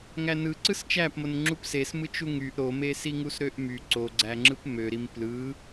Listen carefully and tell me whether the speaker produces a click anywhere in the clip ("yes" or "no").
yes